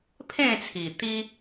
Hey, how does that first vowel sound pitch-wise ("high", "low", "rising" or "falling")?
falling